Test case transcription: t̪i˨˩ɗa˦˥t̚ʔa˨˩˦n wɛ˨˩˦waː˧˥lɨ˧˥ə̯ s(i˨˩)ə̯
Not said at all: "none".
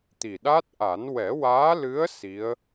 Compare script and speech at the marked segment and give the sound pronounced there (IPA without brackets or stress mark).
i˧˥